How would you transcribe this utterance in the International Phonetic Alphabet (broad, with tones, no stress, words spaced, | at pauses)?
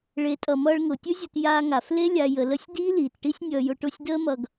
ɭe˨˦tʼʌ˨ mʌː˧ɭŋʊ˨tʲɯ˦zʲʊ˧t jaː˧ŋa˨f le˦lʲa˧ jə˧lə˦sʲ diː˦liː˨tʈi˦sʲ nʲʌː˧jʊ˧ ʈʊ˦˨sʲdəː˦mʌ˧ɡ